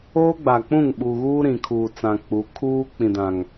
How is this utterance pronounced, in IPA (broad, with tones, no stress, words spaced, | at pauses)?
oː˦ɡ͡ba˨k͡pũ˦˨ŋ ɓuː˨ɣuː˦ ɾĩ˨kʰuː˨t͡sã˨ k͡pu˨˦ kʰuː˦k͡pĩ˨ dã˨ŋ